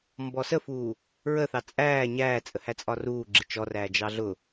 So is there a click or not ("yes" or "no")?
yes